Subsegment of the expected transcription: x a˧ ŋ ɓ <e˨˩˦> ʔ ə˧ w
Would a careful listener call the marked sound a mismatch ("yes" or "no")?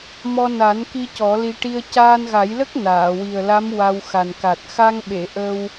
yes